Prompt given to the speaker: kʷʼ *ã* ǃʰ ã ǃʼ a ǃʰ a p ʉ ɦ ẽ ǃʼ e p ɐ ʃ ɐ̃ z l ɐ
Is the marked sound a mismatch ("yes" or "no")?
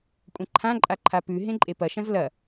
yes